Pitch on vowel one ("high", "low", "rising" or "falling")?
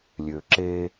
low